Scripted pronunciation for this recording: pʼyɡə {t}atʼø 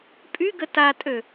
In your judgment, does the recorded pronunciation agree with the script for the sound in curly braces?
yes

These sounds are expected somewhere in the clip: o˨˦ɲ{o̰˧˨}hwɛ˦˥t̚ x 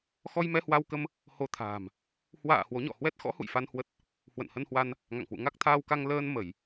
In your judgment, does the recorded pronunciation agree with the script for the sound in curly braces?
no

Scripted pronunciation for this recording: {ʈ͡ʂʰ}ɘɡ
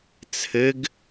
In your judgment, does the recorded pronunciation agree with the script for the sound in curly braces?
no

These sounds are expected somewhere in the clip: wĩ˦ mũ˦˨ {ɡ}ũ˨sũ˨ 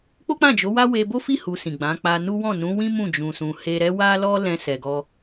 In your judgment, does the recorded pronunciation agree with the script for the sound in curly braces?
no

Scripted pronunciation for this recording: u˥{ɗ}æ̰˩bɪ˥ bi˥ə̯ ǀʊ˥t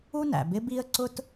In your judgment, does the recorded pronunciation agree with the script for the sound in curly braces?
no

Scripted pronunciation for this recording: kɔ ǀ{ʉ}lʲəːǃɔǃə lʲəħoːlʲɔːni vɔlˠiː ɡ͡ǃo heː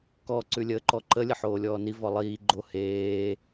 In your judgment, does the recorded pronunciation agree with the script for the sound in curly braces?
yes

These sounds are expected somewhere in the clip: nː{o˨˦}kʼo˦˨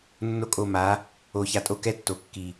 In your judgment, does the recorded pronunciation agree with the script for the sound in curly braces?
no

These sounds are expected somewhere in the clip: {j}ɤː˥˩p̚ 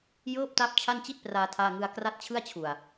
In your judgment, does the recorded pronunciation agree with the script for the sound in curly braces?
yes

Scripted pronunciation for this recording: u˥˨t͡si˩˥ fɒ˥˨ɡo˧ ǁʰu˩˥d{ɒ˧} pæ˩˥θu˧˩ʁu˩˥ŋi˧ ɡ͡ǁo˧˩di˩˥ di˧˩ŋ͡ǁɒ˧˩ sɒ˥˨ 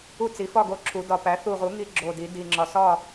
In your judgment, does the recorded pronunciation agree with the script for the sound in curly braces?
no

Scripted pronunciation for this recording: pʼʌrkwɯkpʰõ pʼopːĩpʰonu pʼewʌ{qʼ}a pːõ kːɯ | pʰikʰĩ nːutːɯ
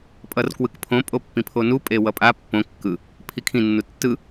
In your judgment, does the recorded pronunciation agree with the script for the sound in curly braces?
no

